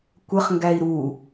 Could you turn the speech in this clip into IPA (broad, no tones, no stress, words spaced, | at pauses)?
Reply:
kʷəχŋɡæi̯ ɾu